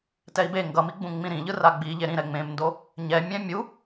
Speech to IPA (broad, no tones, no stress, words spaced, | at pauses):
tɛi̯be ŋɡʌmiɡ͡bũ ŋ͡mĩɾĩʎɯ raɡ͡biʎe ɾĩ ɾɛŋ͡mẽmndo | ɲɛmʲɛ̃ mʲu